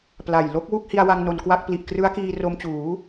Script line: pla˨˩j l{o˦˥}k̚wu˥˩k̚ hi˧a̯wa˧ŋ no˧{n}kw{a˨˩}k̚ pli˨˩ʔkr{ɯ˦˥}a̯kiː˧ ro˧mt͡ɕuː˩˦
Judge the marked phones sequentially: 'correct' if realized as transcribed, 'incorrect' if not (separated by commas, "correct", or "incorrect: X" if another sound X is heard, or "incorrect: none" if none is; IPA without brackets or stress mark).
correct, correct, incorrect: a˥˩, correct